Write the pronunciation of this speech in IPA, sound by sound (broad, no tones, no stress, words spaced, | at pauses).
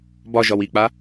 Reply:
bɒʒɒw ik͡pa